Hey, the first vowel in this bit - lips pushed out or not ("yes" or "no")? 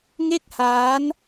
no